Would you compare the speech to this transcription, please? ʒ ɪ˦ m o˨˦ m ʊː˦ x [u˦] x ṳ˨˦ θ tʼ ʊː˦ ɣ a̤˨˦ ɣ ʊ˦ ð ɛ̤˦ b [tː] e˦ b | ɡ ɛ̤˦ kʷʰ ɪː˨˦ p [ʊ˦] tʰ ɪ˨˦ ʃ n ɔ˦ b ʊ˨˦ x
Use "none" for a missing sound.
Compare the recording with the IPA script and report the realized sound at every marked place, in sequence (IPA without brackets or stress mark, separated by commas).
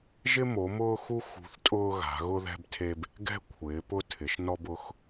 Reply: u˦, tʰ, ʊ˦